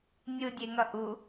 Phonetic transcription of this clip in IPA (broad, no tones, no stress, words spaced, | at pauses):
nʲɯdʲeŋʌ ʔu